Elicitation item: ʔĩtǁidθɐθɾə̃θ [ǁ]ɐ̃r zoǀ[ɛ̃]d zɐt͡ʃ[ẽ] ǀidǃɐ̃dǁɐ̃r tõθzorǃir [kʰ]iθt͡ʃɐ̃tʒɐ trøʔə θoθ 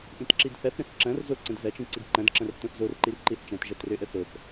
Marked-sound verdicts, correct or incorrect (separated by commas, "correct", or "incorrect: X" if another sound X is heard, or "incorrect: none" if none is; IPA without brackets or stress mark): correct, incorrect: ə̃, incorrect: ĩ, incorrect: ǃ